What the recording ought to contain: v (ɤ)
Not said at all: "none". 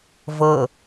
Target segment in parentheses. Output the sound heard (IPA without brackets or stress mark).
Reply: ɤ